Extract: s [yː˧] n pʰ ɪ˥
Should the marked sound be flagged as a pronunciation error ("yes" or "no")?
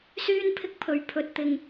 yes